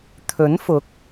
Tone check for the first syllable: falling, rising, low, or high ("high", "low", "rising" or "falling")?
rising